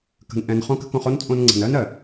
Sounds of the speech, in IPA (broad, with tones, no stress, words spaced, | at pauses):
kə̤˨n ʔɛ̃˨n χõ˦kə̤˦kõ˧χ o˦nt͡sʼõ˧nŋ͡ǀə̤˨n ɜ˦nɜ˨